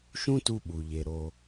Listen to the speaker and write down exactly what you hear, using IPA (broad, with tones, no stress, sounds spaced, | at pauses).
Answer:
ʃ ũ˦ t u˧ ɓ u˨ ʎ e˨ ɾ o˧